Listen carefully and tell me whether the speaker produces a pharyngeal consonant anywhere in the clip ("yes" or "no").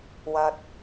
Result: no